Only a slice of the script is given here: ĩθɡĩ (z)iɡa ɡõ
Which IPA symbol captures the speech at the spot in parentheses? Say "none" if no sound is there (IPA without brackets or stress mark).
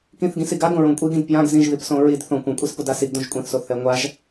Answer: s